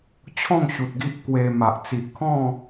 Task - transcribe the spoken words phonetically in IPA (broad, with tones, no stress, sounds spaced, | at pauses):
t͡ɕʰ ɔ̃˥˧ ŋ ɕ u˨ t̚ ɡ i˦ ʔ k w e˧ m a˨ ʔ t͡s i˨ ʔ kʰ ɔ̃˥˧